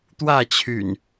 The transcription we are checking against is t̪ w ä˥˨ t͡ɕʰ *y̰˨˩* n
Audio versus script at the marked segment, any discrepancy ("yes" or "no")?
no